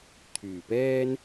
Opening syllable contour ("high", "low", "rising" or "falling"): low